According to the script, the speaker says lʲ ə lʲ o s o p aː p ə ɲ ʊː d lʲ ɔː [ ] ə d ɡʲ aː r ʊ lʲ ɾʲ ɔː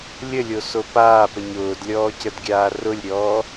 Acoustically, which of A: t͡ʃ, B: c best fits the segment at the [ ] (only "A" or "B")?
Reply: B